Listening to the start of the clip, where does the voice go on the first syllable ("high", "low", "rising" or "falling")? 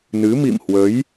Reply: rising